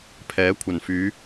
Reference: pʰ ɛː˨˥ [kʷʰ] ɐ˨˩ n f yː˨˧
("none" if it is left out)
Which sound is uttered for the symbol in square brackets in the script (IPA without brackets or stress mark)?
kʷʰ